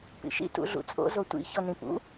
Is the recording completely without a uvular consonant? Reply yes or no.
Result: yes